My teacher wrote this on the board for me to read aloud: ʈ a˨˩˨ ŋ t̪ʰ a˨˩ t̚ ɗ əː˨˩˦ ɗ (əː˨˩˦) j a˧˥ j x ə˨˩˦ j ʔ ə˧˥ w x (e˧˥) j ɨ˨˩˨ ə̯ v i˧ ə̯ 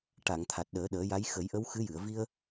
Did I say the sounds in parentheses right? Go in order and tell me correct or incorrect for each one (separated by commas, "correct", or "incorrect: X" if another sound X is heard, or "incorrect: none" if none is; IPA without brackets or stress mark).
correct, incorrect: ɨ˧˥